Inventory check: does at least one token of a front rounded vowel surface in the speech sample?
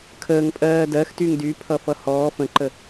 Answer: yes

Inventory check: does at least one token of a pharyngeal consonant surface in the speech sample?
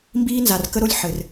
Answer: yes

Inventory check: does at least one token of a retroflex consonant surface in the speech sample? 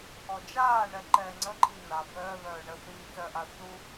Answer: yes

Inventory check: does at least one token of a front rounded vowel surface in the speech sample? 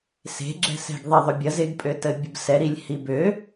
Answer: yes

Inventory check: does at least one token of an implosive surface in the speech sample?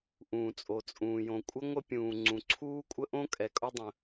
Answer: no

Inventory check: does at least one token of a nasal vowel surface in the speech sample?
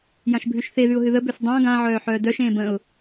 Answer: yes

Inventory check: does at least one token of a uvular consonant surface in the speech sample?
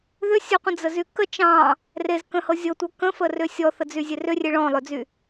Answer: yes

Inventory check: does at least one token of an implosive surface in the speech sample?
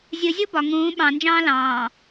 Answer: yes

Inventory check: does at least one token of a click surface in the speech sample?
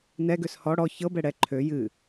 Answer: yes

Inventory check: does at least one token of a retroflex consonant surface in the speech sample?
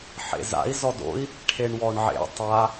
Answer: yes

